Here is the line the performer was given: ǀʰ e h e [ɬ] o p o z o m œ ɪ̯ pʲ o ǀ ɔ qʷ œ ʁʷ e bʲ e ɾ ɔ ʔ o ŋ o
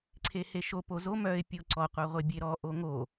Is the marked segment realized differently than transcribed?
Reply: yes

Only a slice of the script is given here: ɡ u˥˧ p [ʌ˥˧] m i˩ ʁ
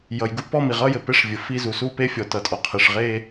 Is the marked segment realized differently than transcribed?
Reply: yes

